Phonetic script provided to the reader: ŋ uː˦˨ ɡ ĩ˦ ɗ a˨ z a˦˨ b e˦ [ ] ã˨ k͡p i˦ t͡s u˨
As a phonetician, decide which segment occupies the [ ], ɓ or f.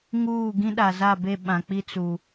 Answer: ɓ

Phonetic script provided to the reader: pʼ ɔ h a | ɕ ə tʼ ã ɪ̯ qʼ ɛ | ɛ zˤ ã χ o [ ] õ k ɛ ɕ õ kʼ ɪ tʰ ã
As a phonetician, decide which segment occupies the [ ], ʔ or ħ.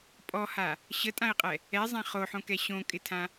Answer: ħ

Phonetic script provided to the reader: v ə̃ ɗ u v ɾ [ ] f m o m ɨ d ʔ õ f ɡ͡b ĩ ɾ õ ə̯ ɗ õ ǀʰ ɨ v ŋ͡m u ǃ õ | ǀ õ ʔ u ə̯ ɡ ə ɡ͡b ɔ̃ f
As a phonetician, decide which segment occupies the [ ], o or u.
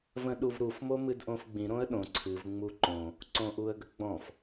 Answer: u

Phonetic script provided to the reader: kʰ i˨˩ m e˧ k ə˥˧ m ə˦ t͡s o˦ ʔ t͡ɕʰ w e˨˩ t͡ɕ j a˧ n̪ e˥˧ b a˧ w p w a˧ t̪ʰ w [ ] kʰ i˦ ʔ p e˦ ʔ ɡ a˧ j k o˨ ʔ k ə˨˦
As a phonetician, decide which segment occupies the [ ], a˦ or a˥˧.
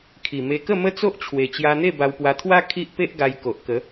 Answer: a˦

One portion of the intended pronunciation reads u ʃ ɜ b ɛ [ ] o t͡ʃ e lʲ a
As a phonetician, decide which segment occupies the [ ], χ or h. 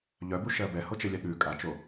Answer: h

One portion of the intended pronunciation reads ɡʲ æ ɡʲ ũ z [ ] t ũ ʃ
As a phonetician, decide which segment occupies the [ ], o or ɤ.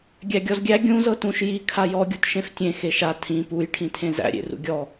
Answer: ɤ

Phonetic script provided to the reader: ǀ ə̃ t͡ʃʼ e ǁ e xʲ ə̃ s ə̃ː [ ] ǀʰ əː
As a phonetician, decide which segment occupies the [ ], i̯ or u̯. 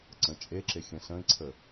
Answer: i̯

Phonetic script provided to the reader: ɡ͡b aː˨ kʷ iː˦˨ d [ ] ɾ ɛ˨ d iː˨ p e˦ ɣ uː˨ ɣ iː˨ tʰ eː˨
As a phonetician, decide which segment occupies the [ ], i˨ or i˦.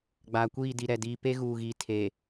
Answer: i˨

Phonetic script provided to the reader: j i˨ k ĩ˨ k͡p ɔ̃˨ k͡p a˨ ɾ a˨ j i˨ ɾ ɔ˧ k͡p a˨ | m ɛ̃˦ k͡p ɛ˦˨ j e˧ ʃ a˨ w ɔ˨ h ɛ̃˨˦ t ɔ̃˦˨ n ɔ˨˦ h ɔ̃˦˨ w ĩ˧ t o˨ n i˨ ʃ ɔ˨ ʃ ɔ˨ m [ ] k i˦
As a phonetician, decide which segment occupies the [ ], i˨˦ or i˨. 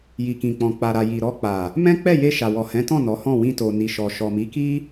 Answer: i˨˦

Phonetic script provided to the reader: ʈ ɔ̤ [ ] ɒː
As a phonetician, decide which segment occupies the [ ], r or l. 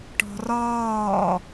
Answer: r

